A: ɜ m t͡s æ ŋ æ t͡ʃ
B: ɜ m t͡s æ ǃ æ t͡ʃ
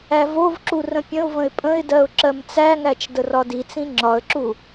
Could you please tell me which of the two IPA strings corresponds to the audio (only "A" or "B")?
A